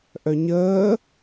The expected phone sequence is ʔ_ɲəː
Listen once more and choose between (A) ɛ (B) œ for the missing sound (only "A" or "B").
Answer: B